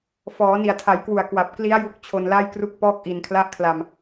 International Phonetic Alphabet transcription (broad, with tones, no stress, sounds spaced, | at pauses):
f ɔː˩˦ n i˨˩ a̯ tʰ a˩˦ j k w u˨˩ a̯ k w a˨˩ p̚ k l i˦˥ a̯ j u˦˥ k̚ t͡ɕʰ o˧ n l a˥˩ j k r u˥˩ k̚ p ɔː˥˩ k̚ ʔ i˧ n kʰ l a˥˩ ʔ kʰ l a˧ m